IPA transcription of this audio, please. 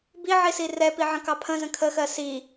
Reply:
b i ʕ i s i r ɛ p i ʕ ə̃ k ɑ pʰ ə̃ z ə̃ kʰ ə x ɜ s i

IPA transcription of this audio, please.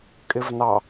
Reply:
kʼ ɪ v n ɑ

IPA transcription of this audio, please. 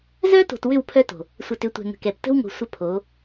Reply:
z œ˦ t o̤˨ t w ʏ˦˨ w pʰ œ˦ t o̤˨ | sʷ ə˨ t ʏ˨˦ tʷ ɛ̤˨ ŋ ə̤˨ k ɛ˨ p t ə̤˦ w ŋ o̤˨ sʷ ə˦ pʰ o˨˦

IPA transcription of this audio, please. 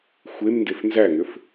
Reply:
xʷ e m n d e f n z æ ŋ ʏ f

